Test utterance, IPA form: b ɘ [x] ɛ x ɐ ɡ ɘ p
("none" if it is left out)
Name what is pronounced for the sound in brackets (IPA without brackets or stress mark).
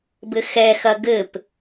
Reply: x